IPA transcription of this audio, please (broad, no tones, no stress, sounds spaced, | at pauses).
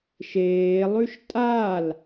ʃ eː lˠ ʉ ʃ tʼ a l